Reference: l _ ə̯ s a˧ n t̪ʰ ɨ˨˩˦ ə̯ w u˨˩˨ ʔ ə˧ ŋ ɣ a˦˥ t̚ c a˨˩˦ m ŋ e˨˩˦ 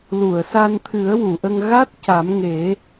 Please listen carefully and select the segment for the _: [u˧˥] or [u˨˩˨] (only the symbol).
u˨˩˨